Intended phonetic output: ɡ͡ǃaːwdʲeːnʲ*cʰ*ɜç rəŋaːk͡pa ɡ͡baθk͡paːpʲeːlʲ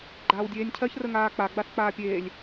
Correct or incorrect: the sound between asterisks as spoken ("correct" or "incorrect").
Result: correct